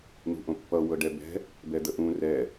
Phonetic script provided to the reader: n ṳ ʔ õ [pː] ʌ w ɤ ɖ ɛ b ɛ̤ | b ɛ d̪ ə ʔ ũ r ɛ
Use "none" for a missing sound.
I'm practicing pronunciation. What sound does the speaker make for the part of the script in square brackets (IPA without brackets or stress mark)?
pː